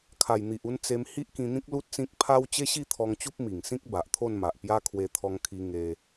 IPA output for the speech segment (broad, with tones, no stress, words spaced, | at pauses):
kʰa˨˩jn̪i˨ʔu˧n t͡se˧m hi˦ʔkĩ˧n̪ĩ˦k̚ lu˦t̚t͡sĩ˦k̚ pʰa˦w t͡ɕe˦ɕi˥˧t̪ʰɔ˧ŋ t͡ɕu˦p̚ mi˨˩ŋsĩ˦k̚ ba˨ʔt̪ʰo˥˧nma˨ʔpja˦ kʰwe˧t̪ʰɔ˧ŋkʰi˧ ŋe˧